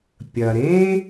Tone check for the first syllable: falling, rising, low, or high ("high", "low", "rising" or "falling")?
low